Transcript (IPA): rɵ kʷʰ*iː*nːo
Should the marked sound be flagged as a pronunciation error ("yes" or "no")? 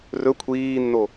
no